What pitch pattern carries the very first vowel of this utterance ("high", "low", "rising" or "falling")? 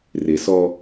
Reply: low